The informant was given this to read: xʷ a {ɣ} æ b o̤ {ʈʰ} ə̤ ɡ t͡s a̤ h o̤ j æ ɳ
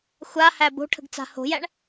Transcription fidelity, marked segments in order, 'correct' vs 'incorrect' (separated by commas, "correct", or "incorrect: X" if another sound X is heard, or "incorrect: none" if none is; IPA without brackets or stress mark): incorrect: h, correct